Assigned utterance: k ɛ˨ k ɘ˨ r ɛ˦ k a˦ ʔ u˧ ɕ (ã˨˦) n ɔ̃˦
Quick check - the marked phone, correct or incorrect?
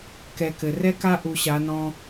incorrect